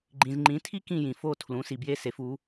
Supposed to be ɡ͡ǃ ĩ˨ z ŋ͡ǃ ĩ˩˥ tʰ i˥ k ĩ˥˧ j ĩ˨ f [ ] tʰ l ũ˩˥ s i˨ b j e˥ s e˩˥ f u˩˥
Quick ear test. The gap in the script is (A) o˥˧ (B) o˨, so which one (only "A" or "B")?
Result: A